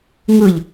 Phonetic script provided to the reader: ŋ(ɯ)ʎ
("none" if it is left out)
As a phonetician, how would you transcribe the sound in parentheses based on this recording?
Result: ɯ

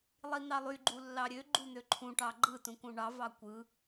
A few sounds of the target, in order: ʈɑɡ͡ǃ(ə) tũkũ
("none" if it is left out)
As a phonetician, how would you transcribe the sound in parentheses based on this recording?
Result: ɯ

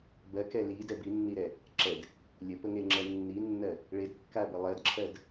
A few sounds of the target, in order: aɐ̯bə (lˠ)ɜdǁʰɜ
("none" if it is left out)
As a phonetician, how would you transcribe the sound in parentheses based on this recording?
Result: lˠ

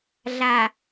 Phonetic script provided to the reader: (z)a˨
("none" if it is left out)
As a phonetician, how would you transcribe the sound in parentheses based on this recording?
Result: ɮ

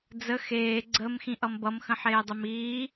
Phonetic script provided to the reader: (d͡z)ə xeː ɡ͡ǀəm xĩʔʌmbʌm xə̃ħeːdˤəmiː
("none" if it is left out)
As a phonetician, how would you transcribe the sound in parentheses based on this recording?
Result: d͡z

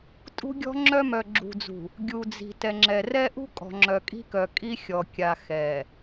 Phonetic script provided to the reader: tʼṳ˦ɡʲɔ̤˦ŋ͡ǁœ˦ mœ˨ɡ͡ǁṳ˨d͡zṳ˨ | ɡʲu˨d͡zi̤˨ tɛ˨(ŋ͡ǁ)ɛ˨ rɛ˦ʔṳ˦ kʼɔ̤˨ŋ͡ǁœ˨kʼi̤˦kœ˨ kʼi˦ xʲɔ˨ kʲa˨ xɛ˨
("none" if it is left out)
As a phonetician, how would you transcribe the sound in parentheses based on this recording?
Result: ŋ͡ǁ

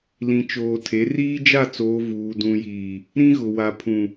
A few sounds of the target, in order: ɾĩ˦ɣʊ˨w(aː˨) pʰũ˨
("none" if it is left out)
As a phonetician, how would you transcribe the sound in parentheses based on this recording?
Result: a˨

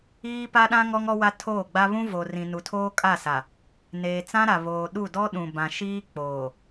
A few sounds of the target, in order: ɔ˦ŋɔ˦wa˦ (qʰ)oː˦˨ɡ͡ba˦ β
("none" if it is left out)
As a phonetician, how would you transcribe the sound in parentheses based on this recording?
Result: tʰ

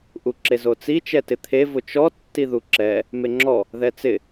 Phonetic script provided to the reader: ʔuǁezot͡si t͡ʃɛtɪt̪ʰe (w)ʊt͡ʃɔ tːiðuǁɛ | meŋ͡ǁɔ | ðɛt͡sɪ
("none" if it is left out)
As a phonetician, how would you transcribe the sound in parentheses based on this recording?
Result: v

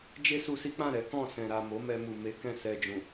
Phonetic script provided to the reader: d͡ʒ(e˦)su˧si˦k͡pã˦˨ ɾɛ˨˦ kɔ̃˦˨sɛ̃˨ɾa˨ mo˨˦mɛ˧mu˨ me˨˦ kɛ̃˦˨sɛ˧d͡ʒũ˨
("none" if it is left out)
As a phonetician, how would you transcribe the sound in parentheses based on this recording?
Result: e˦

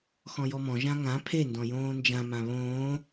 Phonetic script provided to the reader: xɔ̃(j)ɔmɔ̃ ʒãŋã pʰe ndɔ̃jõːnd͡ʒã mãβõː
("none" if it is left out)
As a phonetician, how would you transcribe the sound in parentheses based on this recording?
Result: j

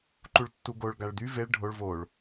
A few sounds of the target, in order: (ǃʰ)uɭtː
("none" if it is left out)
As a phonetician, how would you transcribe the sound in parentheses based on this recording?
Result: ǃ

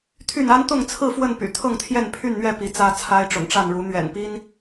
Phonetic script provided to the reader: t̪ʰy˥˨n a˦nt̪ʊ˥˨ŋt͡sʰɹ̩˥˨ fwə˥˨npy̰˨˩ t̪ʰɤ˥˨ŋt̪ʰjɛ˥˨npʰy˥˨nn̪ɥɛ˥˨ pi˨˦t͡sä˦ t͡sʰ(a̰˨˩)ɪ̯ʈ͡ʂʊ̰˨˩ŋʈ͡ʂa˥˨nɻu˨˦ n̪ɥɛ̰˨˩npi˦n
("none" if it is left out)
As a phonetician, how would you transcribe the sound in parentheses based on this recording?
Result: a˦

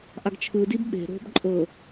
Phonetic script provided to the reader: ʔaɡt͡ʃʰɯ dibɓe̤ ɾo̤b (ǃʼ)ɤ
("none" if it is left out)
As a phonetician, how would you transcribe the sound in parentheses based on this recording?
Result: ǃʼ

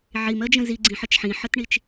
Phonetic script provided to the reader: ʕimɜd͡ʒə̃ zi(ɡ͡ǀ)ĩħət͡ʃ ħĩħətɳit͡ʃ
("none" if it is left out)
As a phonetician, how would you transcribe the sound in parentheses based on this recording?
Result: ɡ͡ǀ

